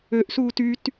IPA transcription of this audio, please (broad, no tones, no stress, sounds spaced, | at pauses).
ø ʔ s uː t y t